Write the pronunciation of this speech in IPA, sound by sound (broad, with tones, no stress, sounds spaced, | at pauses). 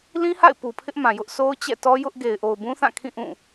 l ĩ˦ h a̰˦˨ ɪ̯ p u˨ pʰ ɪ˦ ʔ m ã˨ j ʊ˦ ʔ sʰ o˦ ʊ̯ t͡ɕ ɛ̰˦˨ t ɔ˦ j ʊ˦ ʔ ɡ e˨ ɪ̯ ʔ o˨ ʊ̯ b ũ˦ θ ã˦˨ kʰ ĩ˦˨ ʔ ũ˦˨